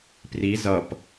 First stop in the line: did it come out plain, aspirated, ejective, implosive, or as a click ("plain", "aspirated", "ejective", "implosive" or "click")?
plain